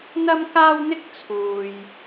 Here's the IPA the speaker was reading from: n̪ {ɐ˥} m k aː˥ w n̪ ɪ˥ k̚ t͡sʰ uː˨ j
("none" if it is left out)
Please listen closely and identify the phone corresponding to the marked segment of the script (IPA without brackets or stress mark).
ɐ˥